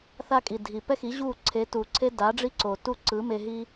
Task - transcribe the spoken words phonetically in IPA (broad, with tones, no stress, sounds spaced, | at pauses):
θ a˧ kʼ i˩ dʱ i˩ p ɛ˥ x i˩˥ ʑ u˥˩ ǀʰ e˩˥ t u˩ ǀʰ e˥ d a˩˥ ɖ͡ʐ i˥ ǀ o˩ t u˥˩ ǀ ɯ˩˥ m e˧ ɦ i˥